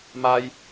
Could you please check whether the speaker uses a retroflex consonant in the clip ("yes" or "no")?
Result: no